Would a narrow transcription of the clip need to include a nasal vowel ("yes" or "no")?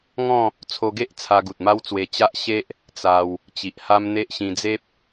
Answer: yes